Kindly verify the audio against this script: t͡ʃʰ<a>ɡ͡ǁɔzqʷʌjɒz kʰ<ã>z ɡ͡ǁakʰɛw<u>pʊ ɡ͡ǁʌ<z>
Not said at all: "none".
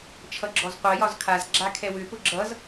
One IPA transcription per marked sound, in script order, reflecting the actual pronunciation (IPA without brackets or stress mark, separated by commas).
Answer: ʌ, a, ʏ, z